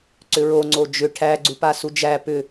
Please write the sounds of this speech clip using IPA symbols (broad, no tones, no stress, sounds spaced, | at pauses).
ǀ ʏ ɹ o ŋ͡ǀ o d͡ʒ ʏ ʈʰ æ ɡ͡ǀ u p a s u d͡ʒ æ p ʏ